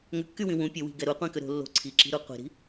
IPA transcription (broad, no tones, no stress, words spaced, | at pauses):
ŋʏkːywĩ wũ pʲəwi̤ɡɛ ɾuqʷĩkʏ ɾo̤ lːo̤ ǀʰiǁi̤ɾu qʷi̤ɾi̤